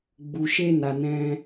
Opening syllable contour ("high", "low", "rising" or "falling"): low